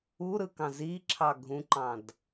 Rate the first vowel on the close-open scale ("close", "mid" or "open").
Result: close